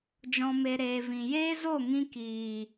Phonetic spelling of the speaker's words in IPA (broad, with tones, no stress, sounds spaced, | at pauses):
d͡ʒ ɔ̃˨ m e˨ ɾ eː˨ v ĩ˨ j eː˦ z o˦˨ ŋ ĩ˧ k iː˨